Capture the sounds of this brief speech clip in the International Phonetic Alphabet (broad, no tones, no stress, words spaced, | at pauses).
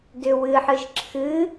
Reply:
dʏwɨħɨʒ ǁʰɨ